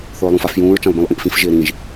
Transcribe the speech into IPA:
θ ʊː lˠ ũ f a f j ũː ɹ t͡ʃ ã lˠ b ĩ lˠ ʔ ĩ ʔ f ĩ f ʒ ɪː ɾ ĩ ʒ

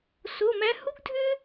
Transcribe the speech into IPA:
s o˧˥˧ m æ˥ h u˥ ɡ dʱ ʏ˥

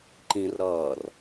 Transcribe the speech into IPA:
ǃ ĩ r ɾ ʌː r

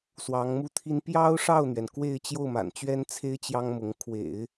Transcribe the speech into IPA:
s w ɑ˧˥ ŋ m u˥˩ t̪ʰ i˥ n p j ɑ˥ ʊ̯ ʂ ɑ˥˩ ʊ̯ n̪ ɥ ɛ˩ n k w e˥˧ ɪ̯ t͡ɕ j o˥˩ ʊ̯ m a̰˨˩ n t͡ɕ ɥ ɛ˥ n t͡sʰ e˥ ɪ̯ t͡ɕ j ɑ˥ ŋ m ʊ˧˥ ŋ kʰ w ḛ˨˩˦ ɪ̯

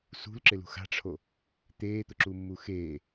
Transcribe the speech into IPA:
s ṳ l ǁ ɪ l ṳ x a̤ ʈ͡ʂʰ o | t̪ eː t̪ ʊ ǁ u mː u x eː

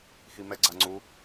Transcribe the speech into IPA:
x i m ɛ ɡ͡ǀ a ŋ͡ǀ u

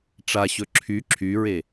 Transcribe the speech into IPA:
ʈ͡ʂ a ɕ ɵ ǁʰ y ǁʰ y ɹ e

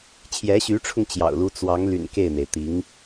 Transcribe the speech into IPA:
t͡ɕʰ j ɛ˧˥ ɕ y˧˥ ʈ͡ʂʰ ʊ˧ ŋ t͡ɕ j ɑ̰˨˩ ʊ̯ l u˥ t͡s w ɑ˧˥ ŋ l y̰˨˩ n k e˥˩ ɪ̯ n̪ e˩ ɪ̯ t̪ i˧˥ ŋ

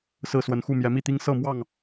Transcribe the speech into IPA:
s ɹ̩˥˨ s w ə˨˦ n x u˥˨ m j ɛ˨˦ m i˥˨ t̪ i˦ ŋ s ɤ˥˨ m w ɑ˥˨ ŋ

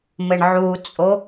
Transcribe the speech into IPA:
m ɘ ɳ ʕ u t͡sʼ o

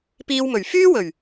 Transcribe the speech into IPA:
p iː˧ w m ɵ˨˩ ɥ f yː˥ w ɵ˨˩ ɥ

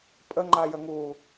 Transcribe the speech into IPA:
pʼ ə ŋ͡ǃ a j ə ŋ uː

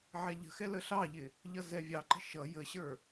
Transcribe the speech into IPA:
ʕ ɛ ʎ ə̤ x ɛ l ə ɬ ɑ ʎ ɪ | ʎ ʌ z ɛ vʲ ɑ ǃ ə̤ ʃ ʌ j ə ɕ ə˞

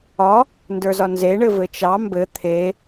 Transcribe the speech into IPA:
ɒ | n d ə˞ z ɒ n z e ɳ ɘ v ɘ t͡ʃ ɑ m b ɘ t̪ʰ e

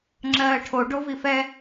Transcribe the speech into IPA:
ŋ͡ǁ ɜː ʈʰ o ɖ o v i f ɛ

